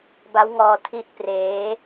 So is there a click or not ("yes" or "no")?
no